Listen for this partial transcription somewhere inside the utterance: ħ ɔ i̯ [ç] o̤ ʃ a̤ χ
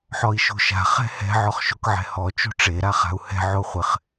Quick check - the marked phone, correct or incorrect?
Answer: incorrect